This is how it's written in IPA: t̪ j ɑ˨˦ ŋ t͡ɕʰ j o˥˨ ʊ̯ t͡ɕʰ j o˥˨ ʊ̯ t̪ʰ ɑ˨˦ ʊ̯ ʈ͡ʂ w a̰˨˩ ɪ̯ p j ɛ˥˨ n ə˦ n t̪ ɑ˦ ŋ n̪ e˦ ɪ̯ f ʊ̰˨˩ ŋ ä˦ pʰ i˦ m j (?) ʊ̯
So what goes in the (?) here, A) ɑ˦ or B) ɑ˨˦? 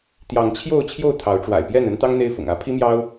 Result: A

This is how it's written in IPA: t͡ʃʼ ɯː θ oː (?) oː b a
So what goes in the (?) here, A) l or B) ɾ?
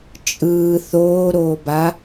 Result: B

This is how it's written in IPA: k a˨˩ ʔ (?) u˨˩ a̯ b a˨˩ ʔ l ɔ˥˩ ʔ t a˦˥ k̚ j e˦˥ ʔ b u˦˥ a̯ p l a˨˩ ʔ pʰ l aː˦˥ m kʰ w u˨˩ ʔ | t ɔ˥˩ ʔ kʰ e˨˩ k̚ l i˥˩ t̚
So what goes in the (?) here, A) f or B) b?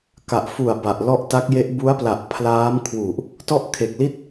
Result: A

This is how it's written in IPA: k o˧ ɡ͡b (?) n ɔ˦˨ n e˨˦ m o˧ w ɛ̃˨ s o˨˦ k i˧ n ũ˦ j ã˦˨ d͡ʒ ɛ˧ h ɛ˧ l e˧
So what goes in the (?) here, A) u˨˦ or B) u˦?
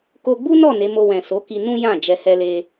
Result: B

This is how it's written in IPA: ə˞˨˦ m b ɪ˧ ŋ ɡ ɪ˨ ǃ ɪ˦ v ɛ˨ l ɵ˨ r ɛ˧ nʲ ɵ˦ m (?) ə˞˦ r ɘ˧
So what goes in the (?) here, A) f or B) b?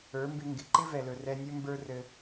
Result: B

